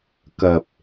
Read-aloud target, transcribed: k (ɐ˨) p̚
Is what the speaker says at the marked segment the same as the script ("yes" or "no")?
yes